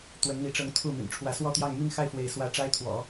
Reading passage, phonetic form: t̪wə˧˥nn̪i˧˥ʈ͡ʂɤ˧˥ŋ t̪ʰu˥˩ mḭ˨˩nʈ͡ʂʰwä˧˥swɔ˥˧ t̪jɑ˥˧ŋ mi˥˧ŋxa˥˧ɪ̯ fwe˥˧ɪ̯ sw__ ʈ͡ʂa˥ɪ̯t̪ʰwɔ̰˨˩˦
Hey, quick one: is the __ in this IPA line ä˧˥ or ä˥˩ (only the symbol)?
ä˥˩